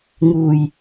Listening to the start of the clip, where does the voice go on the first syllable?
low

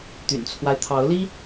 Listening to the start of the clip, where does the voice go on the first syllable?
low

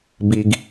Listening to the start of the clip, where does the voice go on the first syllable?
low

